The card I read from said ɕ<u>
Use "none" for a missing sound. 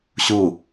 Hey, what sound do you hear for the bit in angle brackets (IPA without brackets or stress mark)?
u